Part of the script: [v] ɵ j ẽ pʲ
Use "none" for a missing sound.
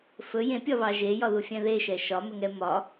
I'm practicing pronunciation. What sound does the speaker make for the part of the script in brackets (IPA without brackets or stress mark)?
f